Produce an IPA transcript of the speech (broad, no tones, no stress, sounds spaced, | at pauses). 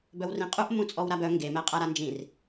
b œ w r ĩ qʼ u ʔ m ũ t͡sʼ ɔ w ɾ a b œ ŋ ɡ e m ɛ qʼ a ɾ a n d͡ʒ ĩ r